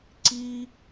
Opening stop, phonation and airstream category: click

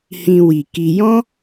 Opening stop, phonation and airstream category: plain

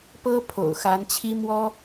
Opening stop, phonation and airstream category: plain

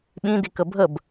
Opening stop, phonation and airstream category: implosive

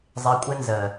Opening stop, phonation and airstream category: ejective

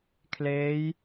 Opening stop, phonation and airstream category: aspirated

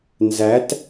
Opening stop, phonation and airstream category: plain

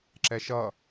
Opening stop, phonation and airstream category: click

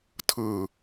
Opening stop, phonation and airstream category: aspirated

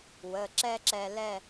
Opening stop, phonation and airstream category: click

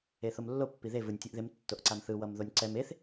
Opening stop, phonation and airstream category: plain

